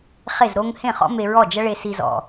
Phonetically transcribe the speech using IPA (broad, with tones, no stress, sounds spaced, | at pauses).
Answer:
χ e˥˩ z ɾ o˥ ŋ h ẽ˥˩ χ ɔ̰˥ m e˧ ɹ ɔ˥˩ d͡ʒ ɐ˥ ɭ e˧ s i˧ z ɔ̰˩